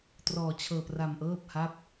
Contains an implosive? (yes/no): no